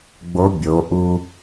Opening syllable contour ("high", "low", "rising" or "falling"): rising